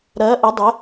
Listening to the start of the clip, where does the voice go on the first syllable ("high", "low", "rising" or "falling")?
rising